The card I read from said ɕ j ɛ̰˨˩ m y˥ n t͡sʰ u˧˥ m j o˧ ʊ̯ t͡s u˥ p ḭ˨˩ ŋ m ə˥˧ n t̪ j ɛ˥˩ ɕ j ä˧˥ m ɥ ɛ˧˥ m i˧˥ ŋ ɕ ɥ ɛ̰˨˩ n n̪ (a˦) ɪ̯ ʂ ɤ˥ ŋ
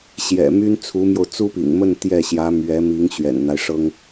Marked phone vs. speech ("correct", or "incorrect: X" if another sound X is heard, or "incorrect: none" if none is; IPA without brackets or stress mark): correct